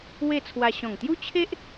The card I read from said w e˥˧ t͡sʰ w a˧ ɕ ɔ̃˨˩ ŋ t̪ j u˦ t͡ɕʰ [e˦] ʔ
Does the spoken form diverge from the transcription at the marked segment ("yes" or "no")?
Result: no